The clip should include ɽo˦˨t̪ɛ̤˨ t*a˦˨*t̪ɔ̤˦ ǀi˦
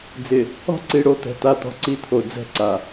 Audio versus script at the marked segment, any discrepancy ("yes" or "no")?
no